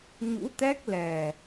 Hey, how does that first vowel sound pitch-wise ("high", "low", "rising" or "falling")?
rising